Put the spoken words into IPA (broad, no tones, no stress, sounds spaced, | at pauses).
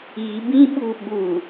i b ĩ ɓ u ɓ u